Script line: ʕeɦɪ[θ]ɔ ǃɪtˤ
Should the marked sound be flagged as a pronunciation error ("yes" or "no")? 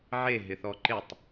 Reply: no